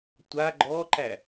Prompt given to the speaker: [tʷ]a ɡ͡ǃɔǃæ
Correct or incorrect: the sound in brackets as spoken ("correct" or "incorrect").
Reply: correct